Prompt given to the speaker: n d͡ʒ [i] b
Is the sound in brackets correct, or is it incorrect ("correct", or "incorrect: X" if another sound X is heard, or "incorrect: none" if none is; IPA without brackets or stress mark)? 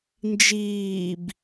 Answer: incorrect: iː